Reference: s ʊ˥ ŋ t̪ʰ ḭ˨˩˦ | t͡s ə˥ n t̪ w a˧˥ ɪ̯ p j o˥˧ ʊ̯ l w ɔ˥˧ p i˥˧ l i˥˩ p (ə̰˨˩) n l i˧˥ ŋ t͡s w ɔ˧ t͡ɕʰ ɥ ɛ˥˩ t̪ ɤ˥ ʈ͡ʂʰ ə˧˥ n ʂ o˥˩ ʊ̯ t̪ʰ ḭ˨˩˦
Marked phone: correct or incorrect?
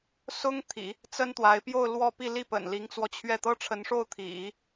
correct